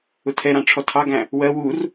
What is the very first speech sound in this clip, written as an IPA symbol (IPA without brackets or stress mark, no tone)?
ʊ